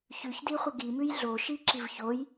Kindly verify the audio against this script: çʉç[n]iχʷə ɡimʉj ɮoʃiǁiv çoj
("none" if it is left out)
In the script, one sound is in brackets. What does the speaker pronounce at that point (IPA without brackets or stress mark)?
d